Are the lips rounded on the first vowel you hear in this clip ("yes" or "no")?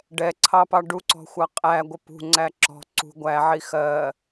no